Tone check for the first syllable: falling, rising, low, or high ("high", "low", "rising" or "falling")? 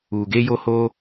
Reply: low